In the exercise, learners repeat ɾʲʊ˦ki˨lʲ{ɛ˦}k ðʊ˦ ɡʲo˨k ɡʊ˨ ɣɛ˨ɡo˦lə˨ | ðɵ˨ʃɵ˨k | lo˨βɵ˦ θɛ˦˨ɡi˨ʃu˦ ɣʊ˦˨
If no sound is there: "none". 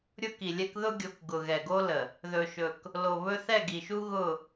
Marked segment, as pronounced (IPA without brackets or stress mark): ɛ˦